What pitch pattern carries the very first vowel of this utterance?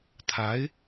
rising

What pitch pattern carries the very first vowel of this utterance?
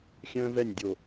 high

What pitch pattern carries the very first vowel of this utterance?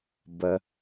low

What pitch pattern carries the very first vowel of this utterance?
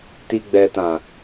low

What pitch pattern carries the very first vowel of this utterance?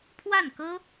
falling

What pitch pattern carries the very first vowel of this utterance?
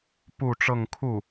falling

